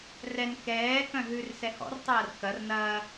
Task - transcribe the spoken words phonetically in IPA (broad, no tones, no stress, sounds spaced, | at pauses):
r ɛ n k ɛː k œ̃ ɦ ʉ r s ɛ h ɔ̰ r tˤ ɐː r k ɐ r n ɐː